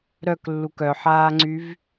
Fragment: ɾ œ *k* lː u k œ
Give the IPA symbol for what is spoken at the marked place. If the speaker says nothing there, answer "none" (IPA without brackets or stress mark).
k